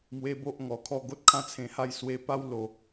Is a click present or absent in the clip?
absent